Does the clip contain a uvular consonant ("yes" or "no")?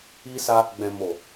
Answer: no